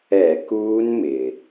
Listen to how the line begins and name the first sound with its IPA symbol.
ɛ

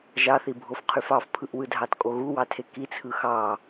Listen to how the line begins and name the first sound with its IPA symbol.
ʒ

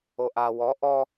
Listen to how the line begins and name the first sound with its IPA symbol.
o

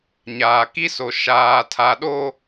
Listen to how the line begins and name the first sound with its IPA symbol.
ɲ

